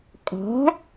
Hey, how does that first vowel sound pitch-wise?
rising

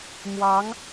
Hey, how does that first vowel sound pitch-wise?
rising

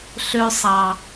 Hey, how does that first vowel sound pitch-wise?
low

